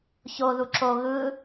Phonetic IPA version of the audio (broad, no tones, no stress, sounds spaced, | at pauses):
ç o ð u ǁ o ɣ ɯ